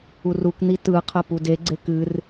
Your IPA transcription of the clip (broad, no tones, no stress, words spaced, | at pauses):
urukn̪i tɯqʰə pudeɡ͡ǀe kɨr